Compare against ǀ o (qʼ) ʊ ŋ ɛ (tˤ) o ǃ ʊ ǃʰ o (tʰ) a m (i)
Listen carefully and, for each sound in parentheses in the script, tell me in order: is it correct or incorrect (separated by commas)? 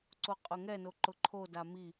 correct, incorrect, incorrect, correct